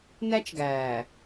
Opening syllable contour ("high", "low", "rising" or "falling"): high